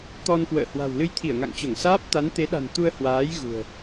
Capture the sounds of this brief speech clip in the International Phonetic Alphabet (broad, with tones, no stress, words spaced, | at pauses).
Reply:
t̪ɔ˧nkwə̰ː˧˨ hwa̤˨˩wlɨ˧jt̪ʰi˧˩ə̯ ŋa̰˧˨ŋt͡ɕo˧˩ŋsaː˦˥p̚ t̪a˨˦nt̪e˨˦ɗa̤˨˩n t̪u˧ə̯hwaː˨˦j ɣṳ˨˩ə̯